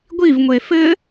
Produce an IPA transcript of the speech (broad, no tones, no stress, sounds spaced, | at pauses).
ɡʷ i v ŋʷ e f ɘ